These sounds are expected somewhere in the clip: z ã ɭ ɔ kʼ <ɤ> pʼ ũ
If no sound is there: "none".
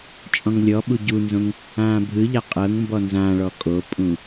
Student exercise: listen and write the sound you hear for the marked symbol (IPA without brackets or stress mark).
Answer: o